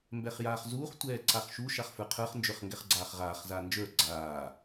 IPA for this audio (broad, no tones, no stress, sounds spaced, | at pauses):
m b ɛ χ j aː χ z uː χ tʷ ɛː ǀ a χ ʃ u ʃ a χ f ə˞ qʰ ə˞ χ n d͡ʒ ə˞ χ ŋ ɡ ɛ χ ɡ͡ǀ aː χ ʁ aː χ z aː n d͡ʒ ə˞ ɡ͡ǀ aː